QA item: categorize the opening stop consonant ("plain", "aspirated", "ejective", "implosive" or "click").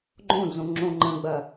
click